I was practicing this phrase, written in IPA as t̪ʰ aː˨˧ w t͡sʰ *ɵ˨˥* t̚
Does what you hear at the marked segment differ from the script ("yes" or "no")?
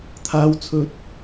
no